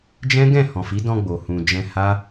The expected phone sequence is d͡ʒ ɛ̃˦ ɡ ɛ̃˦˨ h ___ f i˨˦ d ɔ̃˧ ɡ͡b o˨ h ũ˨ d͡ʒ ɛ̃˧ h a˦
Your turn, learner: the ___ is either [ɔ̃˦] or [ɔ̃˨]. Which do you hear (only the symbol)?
ɔ̃˨